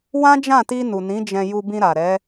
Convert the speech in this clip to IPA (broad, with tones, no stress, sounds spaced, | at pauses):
w ã˦ d͡ʒ ã˦˨ t i˧ n u˨ n ĩ˨˦ d͡ʒ ɛ̃˧ j u˧ b ĩ˧ ɾ a˨ ɾ ɛ˨˦